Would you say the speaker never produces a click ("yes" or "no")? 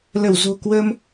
yes